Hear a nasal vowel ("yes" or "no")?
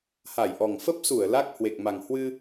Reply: no